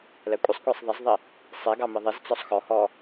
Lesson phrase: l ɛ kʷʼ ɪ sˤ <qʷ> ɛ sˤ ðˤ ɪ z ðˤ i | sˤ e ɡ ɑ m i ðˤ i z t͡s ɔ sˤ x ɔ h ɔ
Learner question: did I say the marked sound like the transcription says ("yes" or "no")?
no